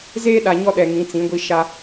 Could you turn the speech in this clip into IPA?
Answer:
z eː˦ ɗ a˨ ɲ ɔ˦ ɗ ɛ˨ ŋ ĩ˨˦ t͡s ĩ˨˦ ɡʷ i˦ ʃ a˦

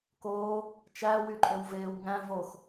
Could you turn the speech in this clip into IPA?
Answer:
k oː | t͡ʃ æ w y ǃʼ ø w v eː w ŋ æ̃ v o x

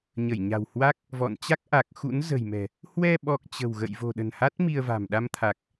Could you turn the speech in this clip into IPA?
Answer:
ɲ ə˧˩ j ɲ a̤˨˩ w h w a˦˥ k̚ | v ɔ̰˧˨ n t͡ɕ a˦˥ k̚ ʔ a˨˩ k̚ x ṵ˧˥ n z ə̤˨˩ j m ɛ̤˨˩ | h w ɛ˧ ɓ ɔ˨˩ k̚ t͡ɕ ə̤˨˩ w ɣ ə̰˧˨ j v o̤˨˩ ɗ ə̤˨˩ n h a˦˥ t̚ m i˧ ə̯ v a̤˨˩ m ɗ a˧ m t̪ʰ a˨˩ k̚

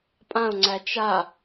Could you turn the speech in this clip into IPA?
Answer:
pʼ ã ʊ̯ ŋ͡ǀ æ t͡ʃ a

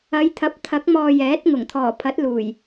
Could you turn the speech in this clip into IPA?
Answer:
ɐ˨˧ j t̪ʰ ɐ˨˥ p̚ t̪ʰ ɐ˨˥ k̚ m ɔː˧ j ɛː˨˥ t̚ ŋ ʊ˨˩ ŋ t̪ʰ ɔː˨˩ pʰ ɐ˨˥ t̚ l uː˨˩ j

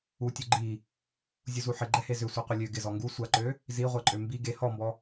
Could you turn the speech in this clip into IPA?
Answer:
u tʲ u ɡ͡ǃ i | zʲ u z u ħ ɪ ɡ͡ǃ ɛ h e z ʏ sʷ i qʷ ə lʲ ø ɡ ɪ z ɔ ŋ ɡ u sʷ a ǃ ø | z i ʁʷ ɛ ǃʼ ø m b i ɡ e h ɔ m b ɔ

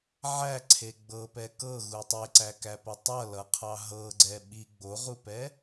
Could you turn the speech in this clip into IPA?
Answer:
ʕ æ ǀʰ e ɡ͡b ɤ p ɛ k ɤ ɣ u tˤ e ǀ æ k æ p ʌ tˤ ʌ l ʌ qʰ ɑ ɦ ɤ ɡ͡ǀ ɛ ɓ i ɡ͡b o ʁ u p ɛ

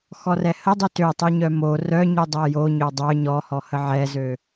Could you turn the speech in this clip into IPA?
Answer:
x ɔ r ɛ h ə dˤ y t ø tˤ y ɲ œ m o r œ ɲ y dˤ ɛ j o ɲ ø dˤ œ ɲ ɔ h ɔ h ə ʕ ɛ z ø

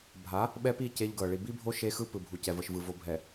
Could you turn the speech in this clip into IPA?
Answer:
bʱ a˨˦ | ɓ ɛ˦ p i˦˨ c e˦ ʎ ɡ ɤ˨ ɭ i˨ b i˦ bʱ o˦ ʃ e˦ x ɯ˦ p ɯ˨ bʱ u˨ c ɛ˨ v ɤ˨ ʃ v ɯ˨ v o˨ bʱ ɛ˨

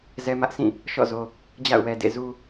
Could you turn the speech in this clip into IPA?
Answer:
z ɛ˦ m ä˦ ʔ sʰ ĩ˦˨ | ʃ ɔ̰˦˨ z o˨ | d͡ʑ a̰˦˨ ʊ̯ w ɛ˨ d ḛ˦˨ z u˦

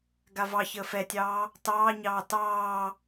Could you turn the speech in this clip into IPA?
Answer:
ɡ a v ɑ ç əː f ɛ tʲ ɑː | t ɑː ɲ ɑː t ɑː

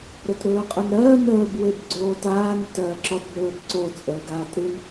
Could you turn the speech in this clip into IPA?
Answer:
ɾ o t ɾ ɵː qʼ ɵ n ɾ ɜː n əː b w e b ɡ͡ǀ oː t aː n ɨ t ɜː ǁ ɔ t b ɵː b ǀ o t͡sʼ əː ɡ aː t ɾ ɨ n

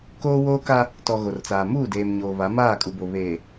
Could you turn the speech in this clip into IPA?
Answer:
k oː˦ w oː˦ k a˦ | t ɔ˨ ɣ o˨ r t͡s aː˨ m uː˦˨ d eː˨ m ɲ oː˨ β a˨˦ m aː˦˨ kʼ u˨ b o˨ β eː˨

